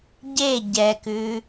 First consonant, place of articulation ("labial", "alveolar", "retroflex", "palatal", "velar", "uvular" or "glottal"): palatal